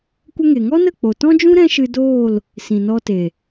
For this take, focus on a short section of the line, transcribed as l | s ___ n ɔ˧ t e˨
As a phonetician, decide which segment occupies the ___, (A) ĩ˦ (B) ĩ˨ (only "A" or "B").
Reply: B